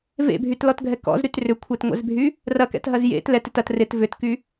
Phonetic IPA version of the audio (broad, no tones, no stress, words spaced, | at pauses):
vḛbʱytlɔtɡʱɛ kɔ̰zɾyt rʏkʷʰɛtŋʷɛ̰zbʱy | rɐkɛ̰tɦɐz jḛt lɛtɪt ɐt rɪt vʏtky